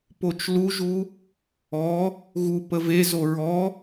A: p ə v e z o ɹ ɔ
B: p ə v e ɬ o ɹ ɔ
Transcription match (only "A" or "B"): A